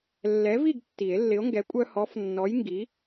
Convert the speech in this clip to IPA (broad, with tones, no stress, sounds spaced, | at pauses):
lː ɛ˨˥ v i˥˨ ɡ tː i˨˩˦ e̯ lː ɪ˨˥ o̯ ŋ ɡ ɛ˨˥ kʷʼ œ˦ h ɔ˨˥ f nː ɔ˨˥ j ŋ ɡ i˨˥